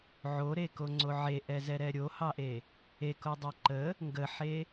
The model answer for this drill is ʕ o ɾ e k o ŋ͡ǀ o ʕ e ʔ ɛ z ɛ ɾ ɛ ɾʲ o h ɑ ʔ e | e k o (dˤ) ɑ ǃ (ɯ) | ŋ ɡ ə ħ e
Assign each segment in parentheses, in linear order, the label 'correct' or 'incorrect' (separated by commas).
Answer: correct, incorrect